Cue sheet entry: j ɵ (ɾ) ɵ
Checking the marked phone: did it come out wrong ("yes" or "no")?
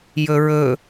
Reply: yes